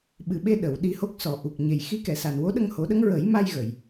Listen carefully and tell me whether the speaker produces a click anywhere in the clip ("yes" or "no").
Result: no